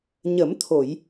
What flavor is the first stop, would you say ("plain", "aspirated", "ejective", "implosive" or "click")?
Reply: aspirated